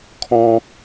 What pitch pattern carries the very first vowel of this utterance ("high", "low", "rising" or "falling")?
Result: high